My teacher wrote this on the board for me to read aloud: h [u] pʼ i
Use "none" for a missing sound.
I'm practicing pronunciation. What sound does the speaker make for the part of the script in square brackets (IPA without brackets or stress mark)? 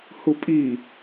u